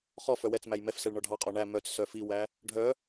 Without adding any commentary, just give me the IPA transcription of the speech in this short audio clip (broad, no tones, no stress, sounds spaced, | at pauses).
χ ɔ f œ w ɛ t͡s m æ j m ɛ f s ɛ ɭ ɳ ɔ ɖʱ ɑ qʼ ɔ ɳ æ m œ t͡s s œ f i w æ | ɖʱ œ